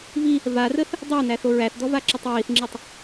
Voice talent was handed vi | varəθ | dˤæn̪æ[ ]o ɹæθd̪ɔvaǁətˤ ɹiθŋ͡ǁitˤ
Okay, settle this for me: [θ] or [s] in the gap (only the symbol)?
θ